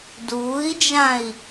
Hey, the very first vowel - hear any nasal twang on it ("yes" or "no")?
no